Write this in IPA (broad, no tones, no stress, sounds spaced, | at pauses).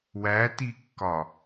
w æ t i kː ɒ